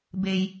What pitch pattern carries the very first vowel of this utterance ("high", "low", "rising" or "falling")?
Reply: low